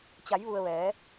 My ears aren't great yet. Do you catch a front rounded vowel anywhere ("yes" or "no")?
no